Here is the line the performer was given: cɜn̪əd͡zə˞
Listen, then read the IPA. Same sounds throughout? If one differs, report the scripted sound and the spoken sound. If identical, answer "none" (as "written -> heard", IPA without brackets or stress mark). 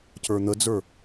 ɜ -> ə˞